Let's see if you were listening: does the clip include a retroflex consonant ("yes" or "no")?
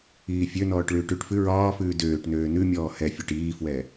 yes